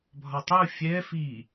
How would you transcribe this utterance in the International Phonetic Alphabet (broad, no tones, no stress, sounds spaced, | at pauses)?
bʱ ɒ tˤ u fʲ ɛ f i